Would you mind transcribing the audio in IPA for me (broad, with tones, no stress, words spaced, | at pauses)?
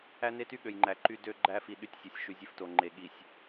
æ˦ne˦ty˦ ɠø˨jŋ͡ǃæ˨ǃy˦ dø˦ ɡ͡ǃæ˦fi˨ ɗy˦tʲsʲø˨sʲ ʃy˨zʲe˦fto˨ŋ͡ǃe˨ ɠi˨sʲ